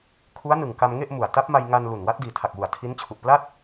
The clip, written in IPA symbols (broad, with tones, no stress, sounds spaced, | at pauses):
kʰ u˦˥ a̯ n ɯ˨˩ ŋ k a˧ m ŋ e˥˩ ʔ m u˨˩ a̯ t a˦˥ p̚ m a˧ j ŋ a˧ n l u˨˩ n w a˦˥ t̚ d iː˨˩ tʰ a˨˩ k̚ w u˨˩ a̯ tʰ i˦˥ n t͡ɕʰ u˨˩ ʔ p l a˥˩ t̚